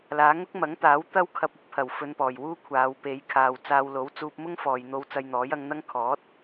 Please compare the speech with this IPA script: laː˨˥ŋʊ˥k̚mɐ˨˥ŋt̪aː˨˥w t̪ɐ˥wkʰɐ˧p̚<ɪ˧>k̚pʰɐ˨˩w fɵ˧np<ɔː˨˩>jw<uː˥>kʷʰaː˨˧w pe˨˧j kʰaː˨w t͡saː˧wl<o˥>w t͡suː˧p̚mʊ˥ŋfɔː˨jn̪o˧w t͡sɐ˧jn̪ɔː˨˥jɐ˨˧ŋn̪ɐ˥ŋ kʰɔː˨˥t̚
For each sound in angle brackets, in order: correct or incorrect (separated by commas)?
incorrect, correct, correct, incorrect